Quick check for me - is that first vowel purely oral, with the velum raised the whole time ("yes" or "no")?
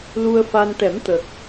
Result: yes